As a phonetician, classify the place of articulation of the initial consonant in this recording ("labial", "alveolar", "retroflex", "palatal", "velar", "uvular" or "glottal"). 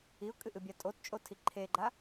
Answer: velar